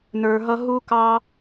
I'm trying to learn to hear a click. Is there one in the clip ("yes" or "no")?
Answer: no